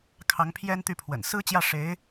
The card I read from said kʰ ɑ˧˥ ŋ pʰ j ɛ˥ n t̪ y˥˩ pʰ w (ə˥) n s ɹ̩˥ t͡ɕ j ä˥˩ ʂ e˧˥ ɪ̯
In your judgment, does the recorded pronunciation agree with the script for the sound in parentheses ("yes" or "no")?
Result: no